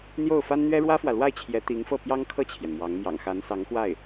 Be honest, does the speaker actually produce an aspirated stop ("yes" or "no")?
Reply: yes